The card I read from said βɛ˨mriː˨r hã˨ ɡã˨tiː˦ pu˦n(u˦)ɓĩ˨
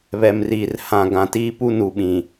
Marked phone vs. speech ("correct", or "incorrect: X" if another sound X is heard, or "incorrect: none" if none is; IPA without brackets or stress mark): incorrect: u˨